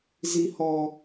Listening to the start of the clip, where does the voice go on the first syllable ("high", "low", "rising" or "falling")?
high